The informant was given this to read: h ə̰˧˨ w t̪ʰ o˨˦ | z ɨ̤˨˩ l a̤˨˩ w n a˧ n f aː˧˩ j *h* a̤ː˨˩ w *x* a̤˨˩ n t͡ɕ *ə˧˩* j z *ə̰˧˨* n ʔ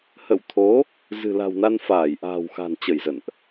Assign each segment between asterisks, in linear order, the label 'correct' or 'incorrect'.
incorrect, correct, correct, correct

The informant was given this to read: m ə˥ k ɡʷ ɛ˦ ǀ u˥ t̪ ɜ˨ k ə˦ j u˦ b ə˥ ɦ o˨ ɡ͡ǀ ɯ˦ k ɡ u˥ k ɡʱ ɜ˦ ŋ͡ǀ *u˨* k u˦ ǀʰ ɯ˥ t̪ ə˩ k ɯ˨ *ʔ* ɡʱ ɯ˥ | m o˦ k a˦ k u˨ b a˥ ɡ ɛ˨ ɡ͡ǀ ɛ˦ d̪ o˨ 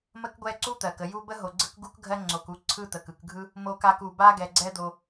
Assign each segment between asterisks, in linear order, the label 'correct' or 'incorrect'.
incorrect, incorrect

